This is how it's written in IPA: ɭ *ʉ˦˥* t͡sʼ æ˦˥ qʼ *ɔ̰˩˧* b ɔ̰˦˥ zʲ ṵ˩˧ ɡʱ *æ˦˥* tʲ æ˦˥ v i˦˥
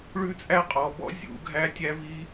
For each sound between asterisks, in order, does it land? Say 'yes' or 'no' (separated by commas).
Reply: yes, no, yes